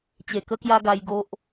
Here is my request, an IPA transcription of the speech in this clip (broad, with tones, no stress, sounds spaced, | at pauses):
t͡ɕ e˨˩ k ə˦ k j a˦ ɡ a˧ j ɡ o˦ ʔ